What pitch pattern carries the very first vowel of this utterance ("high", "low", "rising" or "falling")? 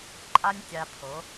high